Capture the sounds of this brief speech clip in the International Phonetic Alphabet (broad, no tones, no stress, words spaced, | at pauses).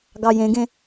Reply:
ɡɑjẽɡẽ